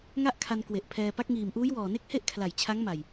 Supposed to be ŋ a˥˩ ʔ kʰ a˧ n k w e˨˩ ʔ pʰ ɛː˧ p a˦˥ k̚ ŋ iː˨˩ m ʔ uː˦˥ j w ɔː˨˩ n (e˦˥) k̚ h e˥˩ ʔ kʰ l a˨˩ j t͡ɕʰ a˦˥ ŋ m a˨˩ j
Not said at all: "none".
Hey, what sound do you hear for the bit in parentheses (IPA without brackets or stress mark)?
e˦˥